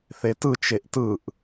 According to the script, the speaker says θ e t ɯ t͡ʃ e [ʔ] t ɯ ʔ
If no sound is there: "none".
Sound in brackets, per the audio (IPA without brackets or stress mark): ʔ